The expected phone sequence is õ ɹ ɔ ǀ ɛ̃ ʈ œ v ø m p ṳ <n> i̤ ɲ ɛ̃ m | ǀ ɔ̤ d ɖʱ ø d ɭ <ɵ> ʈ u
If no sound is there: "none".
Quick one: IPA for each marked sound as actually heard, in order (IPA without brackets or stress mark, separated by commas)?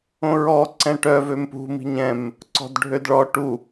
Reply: m, ɔ